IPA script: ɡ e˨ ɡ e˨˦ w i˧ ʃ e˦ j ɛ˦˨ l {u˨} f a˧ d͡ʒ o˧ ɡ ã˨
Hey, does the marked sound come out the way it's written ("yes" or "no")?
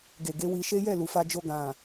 yes